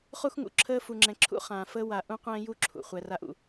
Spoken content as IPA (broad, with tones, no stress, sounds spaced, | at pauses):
χ u˦ x ŋ ṵ˨ ǁʰ əː˦ f u˨ ŋ͡ǁ ɛ̃˨ ǁʰ ṵ˦ χ ãː˨ f əː˦ w a˨ ʔ ũ˦ qʷ ɛ̃ː˦ j u˦ ǁʰ ṵ˨ χʷ ɛ˨ r a˦ ʔ ṵ˨